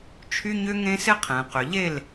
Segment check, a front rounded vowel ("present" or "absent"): present